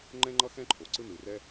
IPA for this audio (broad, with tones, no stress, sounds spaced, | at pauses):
ŋ͡ǃ ɛ̃˥ ŋ͡ǃ ʌ˥ x ɛ̃˥ ǃʰ o˩ ǀ ɯ˥ n ɯ˩ r ɛ˥